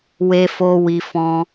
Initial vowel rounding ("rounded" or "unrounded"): unrounded